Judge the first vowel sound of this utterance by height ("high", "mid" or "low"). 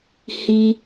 high